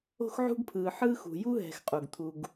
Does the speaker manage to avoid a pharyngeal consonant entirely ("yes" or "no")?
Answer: no